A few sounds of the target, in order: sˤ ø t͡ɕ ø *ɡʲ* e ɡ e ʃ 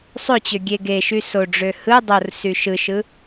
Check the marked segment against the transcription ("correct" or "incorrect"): correct